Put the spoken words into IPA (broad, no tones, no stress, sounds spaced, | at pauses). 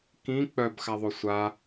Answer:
k ĩ k͡p œ b x a ðˤ o sʷ a